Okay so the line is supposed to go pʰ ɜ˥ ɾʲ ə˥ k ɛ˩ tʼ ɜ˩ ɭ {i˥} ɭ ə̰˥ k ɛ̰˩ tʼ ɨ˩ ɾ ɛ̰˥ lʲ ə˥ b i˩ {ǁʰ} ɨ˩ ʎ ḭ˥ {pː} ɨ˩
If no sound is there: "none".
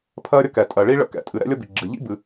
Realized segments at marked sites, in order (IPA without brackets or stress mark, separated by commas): i˥, ɡ͡ǁ, b